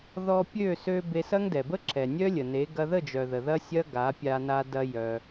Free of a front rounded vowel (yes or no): no